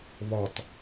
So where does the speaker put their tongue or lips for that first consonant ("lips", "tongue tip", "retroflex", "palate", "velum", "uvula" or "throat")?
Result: lips